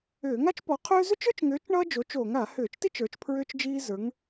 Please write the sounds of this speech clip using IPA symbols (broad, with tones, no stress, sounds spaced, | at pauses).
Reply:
ʏː˧˩˧ ŋ a˥ t͡ʃ p ɔ˨˥ qʰ ʏː˥ z ʏ˥ t͡ʃ ə˞˥ t͡ʃ ŋ ʏː˨˥ t͡ʃ ɳ ʌː˥ d͡ʒ o˨˥ t͡ʃ oː˧˩˧ ŋ a˧˩˧ h ʏː˧˩˧ t͡ʃ t i˥ t͡ʃ ə˞˨˥ t͡ʃ pʰ ɹ ʏː˥ t͡ʃ d͡ʒ iː˥ z ə˞˨˥ ŋ